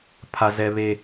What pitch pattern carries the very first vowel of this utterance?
high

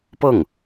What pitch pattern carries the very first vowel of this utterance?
falling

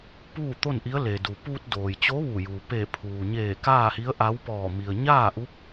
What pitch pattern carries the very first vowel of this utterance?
falling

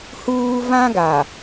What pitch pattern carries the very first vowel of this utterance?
high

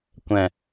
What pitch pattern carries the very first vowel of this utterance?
low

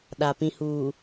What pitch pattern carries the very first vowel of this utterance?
low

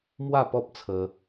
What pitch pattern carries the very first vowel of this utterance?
falling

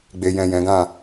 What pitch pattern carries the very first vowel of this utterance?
low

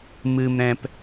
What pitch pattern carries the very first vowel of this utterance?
low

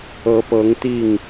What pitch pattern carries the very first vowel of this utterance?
rising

